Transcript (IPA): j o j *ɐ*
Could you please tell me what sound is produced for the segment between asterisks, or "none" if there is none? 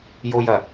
ɐ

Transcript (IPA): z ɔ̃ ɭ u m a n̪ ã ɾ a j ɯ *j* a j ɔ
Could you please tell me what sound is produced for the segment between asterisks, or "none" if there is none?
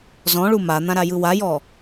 w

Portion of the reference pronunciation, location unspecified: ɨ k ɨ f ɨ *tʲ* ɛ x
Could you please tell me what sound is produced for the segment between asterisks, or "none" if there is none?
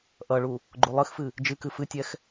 tʲ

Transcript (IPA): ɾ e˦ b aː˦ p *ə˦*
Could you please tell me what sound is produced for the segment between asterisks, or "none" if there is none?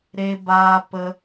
ə˦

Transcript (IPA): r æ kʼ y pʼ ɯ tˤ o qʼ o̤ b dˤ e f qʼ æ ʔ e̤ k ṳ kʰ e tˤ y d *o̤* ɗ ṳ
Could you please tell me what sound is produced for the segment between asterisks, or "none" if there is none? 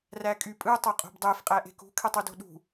o̤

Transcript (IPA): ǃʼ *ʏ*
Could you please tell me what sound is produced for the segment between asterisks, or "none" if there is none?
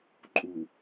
u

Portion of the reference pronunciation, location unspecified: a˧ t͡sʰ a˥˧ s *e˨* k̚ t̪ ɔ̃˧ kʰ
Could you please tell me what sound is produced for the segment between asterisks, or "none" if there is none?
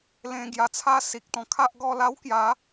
i˨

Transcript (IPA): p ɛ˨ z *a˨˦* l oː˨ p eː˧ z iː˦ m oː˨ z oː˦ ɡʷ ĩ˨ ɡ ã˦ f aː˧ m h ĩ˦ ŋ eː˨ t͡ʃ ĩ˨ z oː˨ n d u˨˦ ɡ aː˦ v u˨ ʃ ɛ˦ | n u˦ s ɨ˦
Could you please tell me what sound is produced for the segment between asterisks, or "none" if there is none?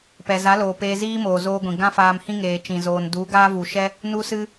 a˨˦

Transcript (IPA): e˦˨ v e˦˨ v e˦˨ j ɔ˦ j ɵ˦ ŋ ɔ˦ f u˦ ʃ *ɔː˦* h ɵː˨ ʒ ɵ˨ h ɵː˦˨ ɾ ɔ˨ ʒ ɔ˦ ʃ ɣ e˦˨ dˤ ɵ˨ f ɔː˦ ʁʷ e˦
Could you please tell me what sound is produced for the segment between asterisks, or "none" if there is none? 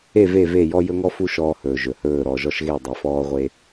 ɔː˦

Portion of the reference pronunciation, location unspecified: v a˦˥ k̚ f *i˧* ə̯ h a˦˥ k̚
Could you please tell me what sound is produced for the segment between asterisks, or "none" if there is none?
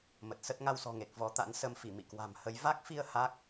i˧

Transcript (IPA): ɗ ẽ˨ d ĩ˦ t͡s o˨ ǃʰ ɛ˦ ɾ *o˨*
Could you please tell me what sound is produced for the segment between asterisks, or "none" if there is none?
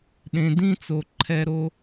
o˦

